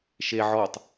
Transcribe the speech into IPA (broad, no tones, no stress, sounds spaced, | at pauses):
ʃ e ʕ ɔ tˤ